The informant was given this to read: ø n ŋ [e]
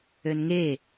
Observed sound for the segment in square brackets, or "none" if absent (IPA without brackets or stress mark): e